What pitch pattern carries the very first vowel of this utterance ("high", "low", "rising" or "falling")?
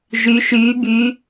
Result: rising